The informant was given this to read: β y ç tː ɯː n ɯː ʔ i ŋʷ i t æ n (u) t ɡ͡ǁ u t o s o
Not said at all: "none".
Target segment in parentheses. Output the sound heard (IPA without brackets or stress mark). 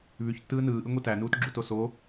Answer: uː